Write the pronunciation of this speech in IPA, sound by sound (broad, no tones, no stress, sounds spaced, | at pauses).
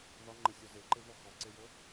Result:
ð ɒ ŋ͡ǃ ə sʲ ɔ z e ǃ e v ɔ x ɔ ǀ e j ə